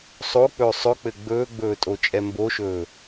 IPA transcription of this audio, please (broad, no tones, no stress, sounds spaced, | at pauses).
sˤ o k͡p ɵː sˤ ɵ k͡p ɘ ɡ͡b ɵː ɡ͡b ɵː tʼ o t͡ʃʼ ɛ m b o ʃ ɵː